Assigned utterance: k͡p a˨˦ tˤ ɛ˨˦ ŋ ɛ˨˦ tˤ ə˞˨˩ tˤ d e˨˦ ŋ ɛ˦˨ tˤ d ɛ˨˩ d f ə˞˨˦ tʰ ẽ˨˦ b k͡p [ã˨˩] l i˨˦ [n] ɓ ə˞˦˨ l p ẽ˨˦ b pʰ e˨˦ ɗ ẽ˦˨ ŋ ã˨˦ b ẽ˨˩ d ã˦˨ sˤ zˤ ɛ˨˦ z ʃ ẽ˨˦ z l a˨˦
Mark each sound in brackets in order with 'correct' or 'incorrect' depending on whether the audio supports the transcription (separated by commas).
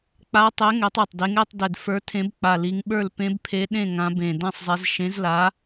incorrect, incorrect